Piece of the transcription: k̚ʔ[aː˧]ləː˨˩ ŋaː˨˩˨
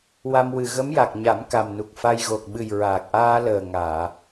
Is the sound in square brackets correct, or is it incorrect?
correct